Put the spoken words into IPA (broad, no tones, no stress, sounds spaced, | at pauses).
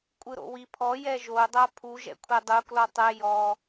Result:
kʷʼ ɯ ɾ o̰ w i pʰ ɔ j ɛ ʒ o dˤ a pʰ u ʒ ɛ̰ kʷʰ ɛ dˤ u k l ɔ tˤ ɛ j ɔ